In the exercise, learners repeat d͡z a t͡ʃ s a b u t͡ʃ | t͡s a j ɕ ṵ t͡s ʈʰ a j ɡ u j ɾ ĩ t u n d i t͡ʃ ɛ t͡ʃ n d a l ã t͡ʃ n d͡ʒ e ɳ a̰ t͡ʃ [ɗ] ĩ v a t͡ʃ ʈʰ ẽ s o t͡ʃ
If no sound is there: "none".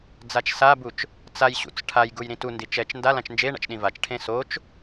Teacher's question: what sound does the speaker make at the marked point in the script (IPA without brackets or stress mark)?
ɗ